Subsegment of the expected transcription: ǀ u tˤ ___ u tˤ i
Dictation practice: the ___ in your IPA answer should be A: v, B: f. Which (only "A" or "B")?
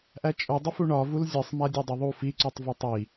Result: A